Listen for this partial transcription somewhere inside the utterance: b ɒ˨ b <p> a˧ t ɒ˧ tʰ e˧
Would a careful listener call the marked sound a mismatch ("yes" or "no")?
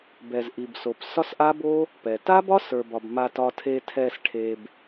yes